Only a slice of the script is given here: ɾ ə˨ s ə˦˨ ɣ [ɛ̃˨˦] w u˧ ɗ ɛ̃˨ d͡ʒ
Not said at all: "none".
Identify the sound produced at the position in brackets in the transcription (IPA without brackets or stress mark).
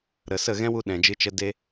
ɛ̃˦